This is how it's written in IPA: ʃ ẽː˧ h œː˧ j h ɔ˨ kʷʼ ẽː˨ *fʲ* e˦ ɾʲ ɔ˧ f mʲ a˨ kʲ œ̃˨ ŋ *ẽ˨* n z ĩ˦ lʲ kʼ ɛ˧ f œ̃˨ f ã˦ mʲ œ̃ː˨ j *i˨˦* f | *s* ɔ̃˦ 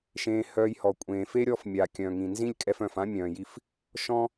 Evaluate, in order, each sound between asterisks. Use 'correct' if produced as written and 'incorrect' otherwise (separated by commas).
incorrect, incorrect, incorrect, incorrect